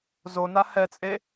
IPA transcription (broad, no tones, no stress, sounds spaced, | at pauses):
z o n a h ɛ t͡sʼ e